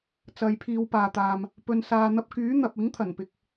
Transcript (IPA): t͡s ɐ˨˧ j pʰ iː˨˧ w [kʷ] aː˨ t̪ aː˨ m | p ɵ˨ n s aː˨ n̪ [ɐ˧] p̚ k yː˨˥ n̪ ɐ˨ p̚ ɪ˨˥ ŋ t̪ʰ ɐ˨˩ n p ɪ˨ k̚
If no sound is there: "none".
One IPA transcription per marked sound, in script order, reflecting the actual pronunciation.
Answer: p, ɐ˧

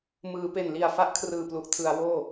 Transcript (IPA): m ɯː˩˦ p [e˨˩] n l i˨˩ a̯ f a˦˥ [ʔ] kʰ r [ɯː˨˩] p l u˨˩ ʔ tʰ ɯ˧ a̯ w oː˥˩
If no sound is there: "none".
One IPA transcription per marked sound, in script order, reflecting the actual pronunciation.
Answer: e˨˩, ʔ, ɯː˨˩

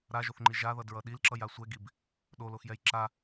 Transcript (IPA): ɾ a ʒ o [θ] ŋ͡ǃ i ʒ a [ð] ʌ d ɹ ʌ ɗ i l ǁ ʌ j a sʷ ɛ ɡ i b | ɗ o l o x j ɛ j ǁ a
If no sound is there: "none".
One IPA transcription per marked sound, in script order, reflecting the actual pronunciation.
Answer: θ, ð

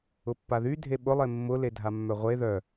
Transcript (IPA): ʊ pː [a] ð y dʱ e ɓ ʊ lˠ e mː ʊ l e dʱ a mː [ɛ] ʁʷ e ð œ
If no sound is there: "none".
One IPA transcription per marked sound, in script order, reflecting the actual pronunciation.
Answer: a, œ

